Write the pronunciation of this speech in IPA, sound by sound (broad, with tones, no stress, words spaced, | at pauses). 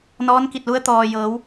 nɔː˧˥nki˧˩t̚lu˧˥ə̯ t̪ɔː˩jɤː˩˧w